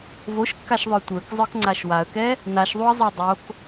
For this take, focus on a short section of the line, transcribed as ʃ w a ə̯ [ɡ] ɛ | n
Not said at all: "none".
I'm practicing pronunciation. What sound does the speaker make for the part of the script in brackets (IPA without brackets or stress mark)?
k